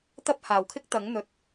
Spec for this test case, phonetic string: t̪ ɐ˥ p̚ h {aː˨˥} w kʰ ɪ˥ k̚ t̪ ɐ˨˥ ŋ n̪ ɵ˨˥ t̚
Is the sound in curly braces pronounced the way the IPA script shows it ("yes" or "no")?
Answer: no